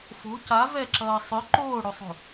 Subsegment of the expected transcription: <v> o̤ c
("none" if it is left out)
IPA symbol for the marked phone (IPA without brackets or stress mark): f